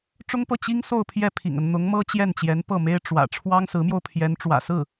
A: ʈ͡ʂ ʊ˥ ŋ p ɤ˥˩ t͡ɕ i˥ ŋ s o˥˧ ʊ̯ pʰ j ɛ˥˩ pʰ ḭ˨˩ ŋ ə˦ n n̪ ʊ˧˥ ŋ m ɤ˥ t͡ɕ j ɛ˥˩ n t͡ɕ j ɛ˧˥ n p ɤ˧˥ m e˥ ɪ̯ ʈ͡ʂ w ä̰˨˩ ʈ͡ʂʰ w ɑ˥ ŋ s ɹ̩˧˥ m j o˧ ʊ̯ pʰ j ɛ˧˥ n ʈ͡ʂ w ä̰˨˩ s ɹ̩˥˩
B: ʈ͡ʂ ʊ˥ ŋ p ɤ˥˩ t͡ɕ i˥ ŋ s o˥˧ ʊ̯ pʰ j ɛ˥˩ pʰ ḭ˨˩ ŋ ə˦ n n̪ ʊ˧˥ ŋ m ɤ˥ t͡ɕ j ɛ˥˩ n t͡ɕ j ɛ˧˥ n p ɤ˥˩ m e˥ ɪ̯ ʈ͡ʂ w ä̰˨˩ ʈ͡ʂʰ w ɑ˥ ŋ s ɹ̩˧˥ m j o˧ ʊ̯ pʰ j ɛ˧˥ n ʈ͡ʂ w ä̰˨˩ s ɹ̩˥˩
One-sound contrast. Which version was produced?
B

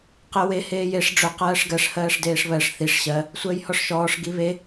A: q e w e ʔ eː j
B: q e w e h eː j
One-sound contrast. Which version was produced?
B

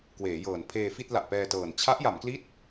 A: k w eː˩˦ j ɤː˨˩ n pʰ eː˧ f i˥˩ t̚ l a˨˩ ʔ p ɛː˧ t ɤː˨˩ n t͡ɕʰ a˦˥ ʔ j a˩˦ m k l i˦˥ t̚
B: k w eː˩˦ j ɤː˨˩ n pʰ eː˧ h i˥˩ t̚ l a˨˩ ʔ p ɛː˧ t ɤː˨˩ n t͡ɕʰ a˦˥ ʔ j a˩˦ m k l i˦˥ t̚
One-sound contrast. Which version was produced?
A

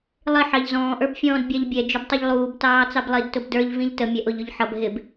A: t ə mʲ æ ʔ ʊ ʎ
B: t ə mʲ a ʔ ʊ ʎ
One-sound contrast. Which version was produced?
A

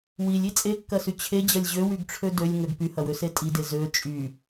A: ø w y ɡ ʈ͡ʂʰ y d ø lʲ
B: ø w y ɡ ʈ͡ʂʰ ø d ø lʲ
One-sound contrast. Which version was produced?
B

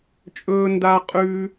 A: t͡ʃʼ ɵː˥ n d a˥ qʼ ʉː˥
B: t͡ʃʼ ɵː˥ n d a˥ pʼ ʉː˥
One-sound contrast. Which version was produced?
A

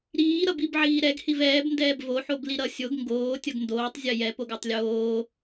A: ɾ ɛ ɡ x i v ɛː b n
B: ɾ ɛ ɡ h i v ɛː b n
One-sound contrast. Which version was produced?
B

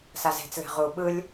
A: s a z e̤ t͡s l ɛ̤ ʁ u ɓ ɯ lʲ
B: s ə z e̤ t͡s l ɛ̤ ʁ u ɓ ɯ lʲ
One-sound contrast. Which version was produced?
A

